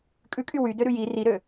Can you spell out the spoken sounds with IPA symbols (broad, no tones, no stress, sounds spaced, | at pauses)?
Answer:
kʼ ʉ kʼ y w y d ø ɾ ʉ j i r i ɾ ø